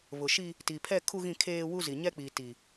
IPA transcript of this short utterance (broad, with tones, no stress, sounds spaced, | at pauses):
β ʊ˨ ʃ i˦ | t i˨ pʰ ɛ˦˨ kʰ u˦ ɣ ĩ˦˨ kʰ eː˦ w u˦ z i˨ ɲ ɛ˦ k͡p iː˨ t i˨